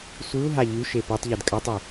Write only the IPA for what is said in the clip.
sʷɨu̯ɦa ʎʉʃe petˤʎed kʼɐtˤʉ

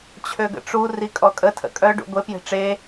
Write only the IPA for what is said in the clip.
t͡ɕʰøɡə̰ʈ͡ʂu rikʼɔkʼə tʰə̰kʼœ ɖṵɡʷepje̤ ʈ͡ʂe

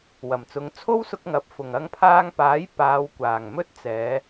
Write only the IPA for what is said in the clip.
wɐ˨˩mt͡sʊ˨˧ŋ t͡sʰo˥wsʊ˧k̚ ŋɐ˨˥p̚fʊ˨ŋ ɐ˧ŋpʰaː˧ŋpaː˨˥j paː˨˧wkʷaː˨˩ŋmɵ˥t̚t͡sɛː˨˧

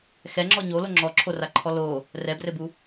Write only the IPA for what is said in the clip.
xɛŋ͡ǁɔ ɲolo ŋ͡ǁɔǁʰoraǃʰɔ lo | rɛbrɘbu

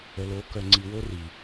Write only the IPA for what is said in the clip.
ə˨lo˨˦ kœ˨ŋ͡ǀi˨wo˦ ri˨

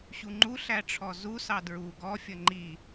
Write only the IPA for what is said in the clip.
ɕuŋ͡ǃuɬæ ʈ͡ʂʰɔzusɑ dɹu ɡɔfʲʌ ŋ͡ǃi

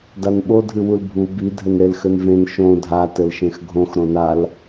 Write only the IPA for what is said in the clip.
danɓo dʱɨwulbʱu bi dʱɘnɾelxɘnvẽn ʃõ dʱa tɘlʃẽxɡʱõx ɾõnal

